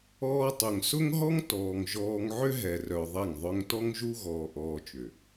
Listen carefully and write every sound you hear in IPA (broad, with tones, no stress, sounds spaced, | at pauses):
ɔː˧ tˤ ʊ˨ ŋ s ʊ˦ ŋ ɦ ɔ˦ ŋ t ɔː˨ ŋ ʒ ɔː˧ ŋ ʕ ʏ˦ ɦ ɛ˨ r œ˨ ðˤ ɛ˦˨ ŋ ðˤ œ˦ ŋ t ɔ˦ ŋ ʒ u˦ ɣ ɔː˧ ʔ ɔː˧ t͡ʃ ʏ˨